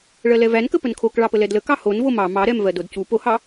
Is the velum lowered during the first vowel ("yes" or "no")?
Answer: no